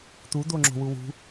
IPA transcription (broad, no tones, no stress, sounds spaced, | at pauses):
t̪ u d̪ o ŋ͡ǁ o̤ w u w ṳ